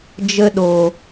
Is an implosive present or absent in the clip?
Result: present